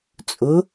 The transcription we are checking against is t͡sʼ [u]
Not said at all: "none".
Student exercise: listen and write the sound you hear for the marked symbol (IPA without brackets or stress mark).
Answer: ʊ